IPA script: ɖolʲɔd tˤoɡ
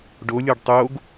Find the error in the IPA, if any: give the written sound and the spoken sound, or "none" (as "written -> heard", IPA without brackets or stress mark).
d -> ɖ